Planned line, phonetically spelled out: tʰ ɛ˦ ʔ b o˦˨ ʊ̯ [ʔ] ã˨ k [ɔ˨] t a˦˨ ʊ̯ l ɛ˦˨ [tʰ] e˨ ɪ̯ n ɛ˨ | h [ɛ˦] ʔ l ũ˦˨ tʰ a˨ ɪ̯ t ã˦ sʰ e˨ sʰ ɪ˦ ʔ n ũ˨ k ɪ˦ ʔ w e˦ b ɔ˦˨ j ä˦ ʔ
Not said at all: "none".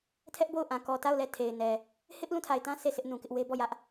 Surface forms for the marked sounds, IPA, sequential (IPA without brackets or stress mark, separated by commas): ʔ, ɔ˨, tʰ, ɪ˦